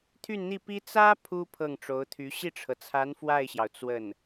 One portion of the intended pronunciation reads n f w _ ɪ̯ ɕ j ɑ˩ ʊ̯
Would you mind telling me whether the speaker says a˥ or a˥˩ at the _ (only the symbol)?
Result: a˥˩